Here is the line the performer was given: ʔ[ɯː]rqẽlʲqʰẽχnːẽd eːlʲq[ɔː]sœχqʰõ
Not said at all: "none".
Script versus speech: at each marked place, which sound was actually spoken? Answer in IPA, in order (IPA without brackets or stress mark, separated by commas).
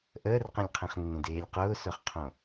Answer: əː, ʊː